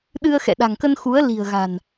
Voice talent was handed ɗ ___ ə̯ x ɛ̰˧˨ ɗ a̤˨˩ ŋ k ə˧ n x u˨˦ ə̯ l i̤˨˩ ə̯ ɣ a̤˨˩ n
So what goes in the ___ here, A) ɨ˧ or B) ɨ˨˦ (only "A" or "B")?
A